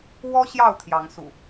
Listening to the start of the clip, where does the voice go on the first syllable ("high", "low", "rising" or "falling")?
high